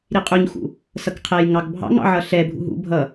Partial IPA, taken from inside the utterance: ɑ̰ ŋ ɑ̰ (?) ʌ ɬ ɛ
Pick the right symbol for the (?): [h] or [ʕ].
ʕ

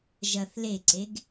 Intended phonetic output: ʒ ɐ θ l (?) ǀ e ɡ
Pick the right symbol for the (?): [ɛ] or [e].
e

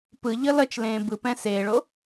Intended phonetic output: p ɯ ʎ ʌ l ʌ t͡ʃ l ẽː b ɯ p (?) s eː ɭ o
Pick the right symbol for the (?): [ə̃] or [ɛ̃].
ɛ̃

